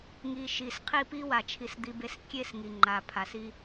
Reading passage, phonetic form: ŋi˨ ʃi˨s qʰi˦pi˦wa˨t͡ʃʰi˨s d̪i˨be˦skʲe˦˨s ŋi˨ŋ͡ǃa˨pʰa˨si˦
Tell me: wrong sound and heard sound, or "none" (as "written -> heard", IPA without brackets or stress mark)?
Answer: none